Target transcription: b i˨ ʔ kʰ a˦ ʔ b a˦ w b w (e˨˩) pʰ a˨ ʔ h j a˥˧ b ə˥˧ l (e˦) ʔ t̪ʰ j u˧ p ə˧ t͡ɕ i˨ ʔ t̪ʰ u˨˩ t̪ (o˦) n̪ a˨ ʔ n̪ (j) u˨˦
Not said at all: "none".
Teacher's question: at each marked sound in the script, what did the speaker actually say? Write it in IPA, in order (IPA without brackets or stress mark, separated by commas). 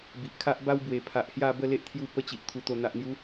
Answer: e˨˩, e˦, o˨˩, j